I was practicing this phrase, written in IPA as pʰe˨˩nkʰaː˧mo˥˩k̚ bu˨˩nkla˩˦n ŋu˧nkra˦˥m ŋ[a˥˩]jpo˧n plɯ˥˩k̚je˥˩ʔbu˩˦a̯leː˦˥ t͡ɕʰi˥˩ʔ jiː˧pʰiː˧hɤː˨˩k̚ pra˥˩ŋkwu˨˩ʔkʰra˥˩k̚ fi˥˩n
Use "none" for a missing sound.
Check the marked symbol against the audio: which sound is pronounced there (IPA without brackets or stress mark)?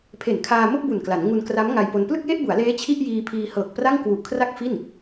a˧